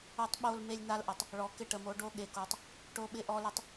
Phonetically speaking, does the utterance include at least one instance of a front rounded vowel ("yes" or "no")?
no